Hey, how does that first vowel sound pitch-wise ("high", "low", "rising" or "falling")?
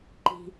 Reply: low